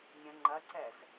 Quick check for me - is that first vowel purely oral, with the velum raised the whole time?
no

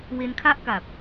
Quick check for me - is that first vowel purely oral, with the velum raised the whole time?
yes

